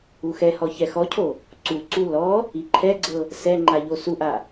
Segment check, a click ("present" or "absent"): present